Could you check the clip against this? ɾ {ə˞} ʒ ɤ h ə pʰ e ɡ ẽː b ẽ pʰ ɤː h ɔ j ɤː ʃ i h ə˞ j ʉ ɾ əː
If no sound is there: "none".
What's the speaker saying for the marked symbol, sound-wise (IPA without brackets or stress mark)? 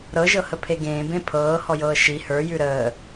ɤ